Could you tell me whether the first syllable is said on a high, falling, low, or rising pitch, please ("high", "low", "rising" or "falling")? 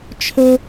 high